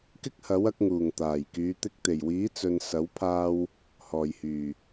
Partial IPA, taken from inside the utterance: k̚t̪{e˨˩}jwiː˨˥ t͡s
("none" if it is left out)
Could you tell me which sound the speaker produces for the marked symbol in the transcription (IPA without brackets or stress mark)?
e˨˩